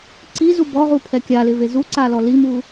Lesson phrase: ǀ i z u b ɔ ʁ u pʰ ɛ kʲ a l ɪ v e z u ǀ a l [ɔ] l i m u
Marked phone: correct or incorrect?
correct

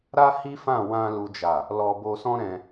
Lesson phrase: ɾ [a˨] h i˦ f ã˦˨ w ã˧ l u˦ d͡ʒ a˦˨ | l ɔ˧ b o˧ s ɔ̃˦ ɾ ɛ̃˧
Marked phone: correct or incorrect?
incorrect: a˦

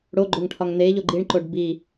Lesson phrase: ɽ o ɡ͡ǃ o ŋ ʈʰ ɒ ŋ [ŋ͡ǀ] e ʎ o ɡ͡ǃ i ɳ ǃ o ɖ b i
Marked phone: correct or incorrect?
incorrect: n̪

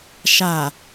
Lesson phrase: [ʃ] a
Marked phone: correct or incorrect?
correct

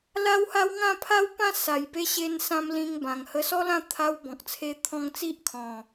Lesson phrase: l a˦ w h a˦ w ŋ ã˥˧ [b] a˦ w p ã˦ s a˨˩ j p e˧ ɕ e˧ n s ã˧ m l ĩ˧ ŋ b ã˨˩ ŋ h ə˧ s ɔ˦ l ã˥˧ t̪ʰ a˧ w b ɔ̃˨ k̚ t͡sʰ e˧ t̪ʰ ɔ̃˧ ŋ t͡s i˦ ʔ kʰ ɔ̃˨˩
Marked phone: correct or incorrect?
incorrect: pʰ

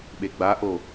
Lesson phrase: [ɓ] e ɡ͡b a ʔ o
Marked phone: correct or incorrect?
correct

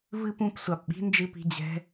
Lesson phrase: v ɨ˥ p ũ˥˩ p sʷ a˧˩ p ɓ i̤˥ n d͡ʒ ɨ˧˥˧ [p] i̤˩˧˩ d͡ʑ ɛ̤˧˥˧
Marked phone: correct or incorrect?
correct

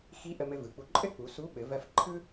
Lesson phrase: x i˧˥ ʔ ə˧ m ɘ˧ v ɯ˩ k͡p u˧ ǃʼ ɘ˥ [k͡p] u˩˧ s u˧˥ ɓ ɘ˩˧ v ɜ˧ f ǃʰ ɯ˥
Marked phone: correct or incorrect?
correct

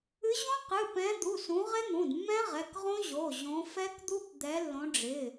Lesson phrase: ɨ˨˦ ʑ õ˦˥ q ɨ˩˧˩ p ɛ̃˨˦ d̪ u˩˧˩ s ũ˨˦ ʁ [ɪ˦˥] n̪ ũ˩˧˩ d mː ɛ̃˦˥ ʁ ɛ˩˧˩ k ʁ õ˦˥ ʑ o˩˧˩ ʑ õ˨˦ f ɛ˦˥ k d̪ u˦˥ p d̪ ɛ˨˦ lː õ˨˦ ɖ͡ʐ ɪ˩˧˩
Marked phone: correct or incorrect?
correct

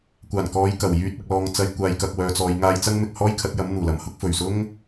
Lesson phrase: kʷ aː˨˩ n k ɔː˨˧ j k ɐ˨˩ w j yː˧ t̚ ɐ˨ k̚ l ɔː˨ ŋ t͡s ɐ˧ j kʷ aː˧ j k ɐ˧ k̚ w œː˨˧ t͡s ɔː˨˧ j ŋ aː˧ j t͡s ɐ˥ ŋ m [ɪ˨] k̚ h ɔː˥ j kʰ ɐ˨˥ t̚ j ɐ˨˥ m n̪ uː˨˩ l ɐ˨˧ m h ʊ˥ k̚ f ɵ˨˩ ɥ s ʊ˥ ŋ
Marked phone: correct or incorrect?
correct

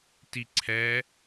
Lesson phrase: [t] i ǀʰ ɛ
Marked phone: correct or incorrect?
correct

